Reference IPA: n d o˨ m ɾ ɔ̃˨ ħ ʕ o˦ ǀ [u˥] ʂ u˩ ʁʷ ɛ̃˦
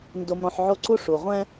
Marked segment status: correct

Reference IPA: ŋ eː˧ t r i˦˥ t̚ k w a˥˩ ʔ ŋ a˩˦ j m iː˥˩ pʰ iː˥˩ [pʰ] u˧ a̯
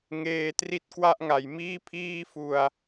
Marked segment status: incorrect: f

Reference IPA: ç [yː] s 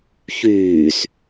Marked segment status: correct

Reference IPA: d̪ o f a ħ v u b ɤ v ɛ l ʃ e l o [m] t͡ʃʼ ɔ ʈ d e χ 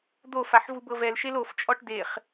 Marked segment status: incorrect: f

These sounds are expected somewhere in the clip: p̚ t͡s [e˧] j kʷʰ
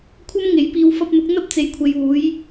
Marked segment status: incorrect: e˨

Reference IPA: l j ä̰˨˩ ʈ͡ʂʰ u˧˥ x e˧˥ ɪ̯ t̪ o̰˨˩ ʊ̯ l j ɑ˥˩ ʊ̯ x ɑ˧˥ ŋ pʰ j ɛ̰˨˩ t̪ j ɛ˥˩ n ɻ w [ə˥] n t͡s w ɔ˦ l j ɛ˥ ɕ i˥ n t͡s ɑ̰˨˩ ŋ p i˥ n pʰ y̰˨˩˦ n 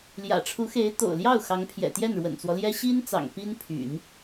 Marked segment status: incorrect: ə̰˨˩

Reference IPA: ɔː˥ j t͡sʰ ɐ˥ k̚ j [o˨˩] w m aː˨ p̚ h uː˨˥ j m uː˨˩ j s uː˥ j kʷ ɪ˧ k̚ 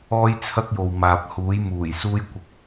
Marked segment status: incorrect: o˨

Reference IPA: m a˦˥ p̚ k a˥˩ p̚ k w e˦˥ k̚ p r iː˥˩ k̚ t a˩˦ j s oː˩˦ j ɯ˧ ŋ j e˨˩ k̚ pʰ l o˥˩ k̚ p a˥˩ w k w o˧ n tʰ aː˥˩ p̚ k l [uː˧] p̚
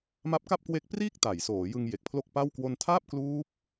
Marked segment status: incorrect: uː˦˥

